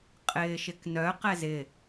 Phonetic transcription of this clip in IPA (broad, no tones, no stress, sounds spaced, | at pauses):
qʼ ɪː ʃ ɪ k n œ q ɛ z ɪ